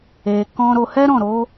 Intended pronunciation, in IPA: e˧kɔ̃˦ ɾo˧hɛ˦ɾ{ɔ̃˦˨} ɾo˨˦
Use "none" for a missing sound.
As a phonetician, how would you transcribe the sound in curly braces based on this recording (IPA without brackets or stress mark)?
ɔ̃˦˨